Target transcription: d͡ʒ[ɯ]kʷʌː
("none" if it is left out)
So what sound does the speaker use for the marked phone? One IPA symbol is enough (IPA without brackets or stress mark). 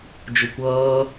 ʊ